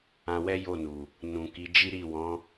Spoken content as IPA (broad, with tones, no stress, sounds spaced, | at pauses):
ã˧ w ɛ˦ j o˦˨ n u˨ | n ũ˨ k i˨˦ d͡ʒ i˦ ɾ i˦˨ w ɔ̃˨˦